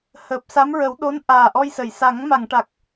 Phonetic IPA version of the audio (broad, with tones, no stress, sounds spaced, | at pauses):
h əː˨˩ p̚ s a˧˥ m ɹ ə˨˩˦ w ɗ o˧˥ n ʔ aː˨˩ ʔ ɔ˧ j s ə˨˩˨ j s a˨˩˦ ŋ m a˨˩˨ ŋ ʈ a˨˩ k̚